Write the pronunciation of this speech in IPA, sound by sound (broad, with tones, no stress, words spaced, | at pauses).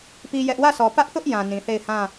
pi˦ jɛ˦ʔ wä˦˨sɔ˨pä˦ʔθʊ˦ʔ jã˨ nĩ˨θe˦˨ɪ̯ hã˦˨